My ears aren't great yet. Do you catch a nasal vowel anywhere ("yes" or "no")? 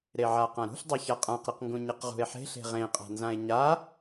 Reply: yes